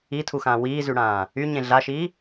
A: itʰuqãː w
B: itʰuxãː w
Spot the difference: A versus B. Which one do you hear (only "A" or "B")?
B